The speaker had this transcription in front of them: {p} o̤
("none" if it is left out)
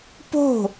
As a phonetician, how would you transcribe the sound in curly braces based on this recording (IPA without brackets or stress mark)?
p